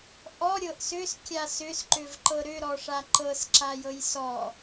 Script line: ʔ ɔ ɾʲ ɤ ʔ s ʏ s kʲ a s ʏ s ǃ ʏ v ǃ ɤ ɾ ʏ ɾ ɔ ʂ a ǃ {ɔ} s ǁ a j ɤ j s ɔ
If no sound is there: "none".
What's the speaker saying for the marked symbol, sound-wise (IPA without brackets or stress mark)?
ɤ